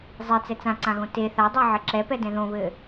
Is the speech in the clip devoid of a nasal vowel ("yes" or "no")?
no